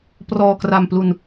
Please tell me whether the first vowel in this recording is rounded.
yes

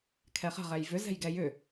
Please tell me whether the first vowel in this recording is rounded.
no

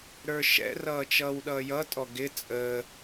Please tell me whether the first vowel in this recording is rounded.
no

